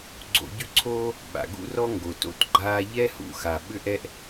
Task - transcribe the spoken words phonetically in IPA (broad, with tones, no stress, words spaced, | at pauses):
ɡ͡ǀo̰˧ɟʏ˥ǀʰoː˥ | ɓa̰˩ɡṵ˥rɔ˥ ŋɡo˩to̰˧tɡ͡ǃaː˧ ʎɛ˥hṵ˧xa˩ ɓʏ˥ʔɛ˥ʔ